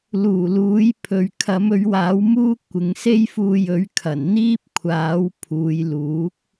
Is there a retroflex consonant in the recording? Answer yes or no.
no